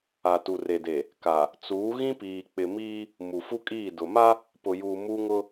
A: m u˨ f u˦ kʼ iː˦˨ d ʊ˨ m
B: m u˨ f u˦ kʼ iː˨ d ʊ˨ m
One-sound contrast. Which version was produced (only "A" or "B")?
A